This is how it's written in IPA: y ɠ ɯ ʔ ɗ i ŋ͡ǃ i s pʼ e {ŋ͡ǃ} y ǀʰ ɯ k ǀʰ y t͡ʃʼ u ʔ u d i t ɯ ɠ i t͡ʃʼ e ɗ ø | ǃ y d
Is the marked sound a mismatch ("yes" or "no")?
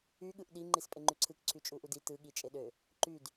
no